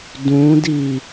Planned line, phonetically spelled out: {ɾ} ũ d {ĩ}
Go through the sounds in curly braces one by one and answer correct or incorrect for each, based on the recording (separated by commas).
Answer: incorrect, incorrect